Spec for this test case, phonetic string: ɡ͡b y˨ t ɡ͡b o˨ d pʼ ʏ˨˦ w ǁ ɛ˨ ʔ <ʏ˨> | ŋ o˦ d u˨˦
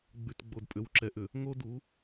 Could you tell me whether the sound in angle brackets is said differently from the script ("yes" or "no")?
no